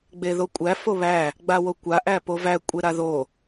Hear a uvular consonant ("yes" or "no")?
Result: no